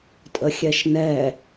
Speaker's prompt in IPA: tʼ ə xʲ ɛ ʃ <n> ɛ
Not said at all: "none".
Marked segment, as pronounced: n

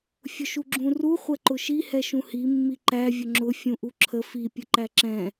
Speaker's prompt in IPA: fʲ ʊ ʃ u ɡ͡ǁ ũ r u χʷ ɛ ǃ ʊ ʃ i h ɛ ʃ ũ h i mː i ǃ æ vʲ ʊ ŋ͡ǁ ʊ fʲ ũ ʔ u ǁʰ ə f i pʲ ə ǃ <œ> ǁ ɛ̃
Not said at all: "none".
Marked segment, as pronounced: æ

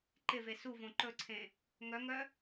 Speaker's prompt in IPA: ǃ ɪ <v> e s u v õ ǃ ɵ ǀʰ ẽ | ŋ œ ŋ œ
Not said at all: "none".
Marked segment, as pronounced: v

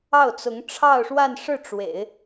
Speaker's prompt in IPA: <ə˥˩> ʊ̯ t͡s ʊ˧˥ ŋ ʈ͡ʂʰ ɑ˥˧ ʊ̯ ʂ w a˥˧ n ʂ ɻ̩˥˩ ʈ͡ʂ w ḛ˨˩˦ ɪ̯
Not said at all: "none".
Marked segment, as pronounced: ɑ˥˩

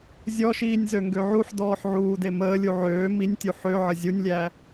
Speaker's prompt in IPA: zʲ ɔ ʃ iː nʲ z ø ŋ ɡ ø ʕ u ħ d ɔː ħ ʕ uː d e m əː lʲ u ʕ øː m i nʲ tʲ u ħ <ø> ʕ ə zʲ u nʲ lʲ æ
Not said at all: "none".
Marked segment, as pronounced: ø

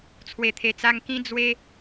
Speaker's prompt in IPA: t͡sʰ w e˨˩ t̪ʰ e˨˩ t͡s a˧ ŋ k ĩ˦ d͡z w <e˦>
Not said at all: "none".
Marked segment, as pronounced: e˦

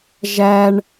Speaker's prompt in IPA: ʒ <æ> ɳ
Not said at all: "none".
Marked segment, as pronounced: æ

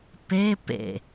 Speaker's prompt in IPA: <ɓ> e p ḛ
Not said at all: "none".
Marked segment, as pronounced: p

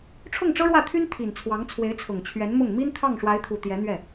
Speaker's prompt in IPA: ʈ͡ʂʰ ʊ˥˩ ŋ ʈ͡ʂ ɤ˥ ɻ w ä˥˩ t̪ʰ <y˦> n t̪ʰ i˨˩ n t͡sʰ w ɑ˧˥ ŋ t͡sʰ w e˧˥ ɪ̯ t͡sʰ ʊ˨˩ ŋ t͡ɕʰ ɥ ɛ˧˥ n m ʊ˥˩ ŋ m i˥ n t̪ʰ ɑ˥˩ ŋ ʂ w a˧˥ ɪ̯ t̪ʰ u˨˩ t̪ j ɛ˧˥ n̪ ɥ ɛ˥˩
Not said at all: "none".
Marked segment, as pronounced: y˥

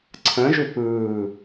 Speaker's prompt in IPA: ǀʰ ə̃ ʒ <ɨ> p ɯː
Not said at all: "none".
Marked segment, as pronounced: ʏ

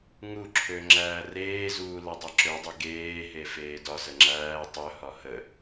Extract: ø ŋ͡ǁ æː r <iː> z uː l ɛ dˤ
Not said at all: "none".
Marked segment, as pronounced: eː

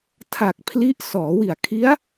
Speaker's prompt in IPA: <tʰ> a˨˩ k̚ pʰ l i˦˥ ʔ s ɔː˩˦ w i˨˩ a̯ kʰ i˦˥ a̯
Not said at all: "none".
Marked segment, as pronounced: tʰ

